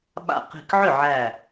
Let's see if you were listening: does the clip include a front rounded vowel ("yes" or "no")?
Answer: yes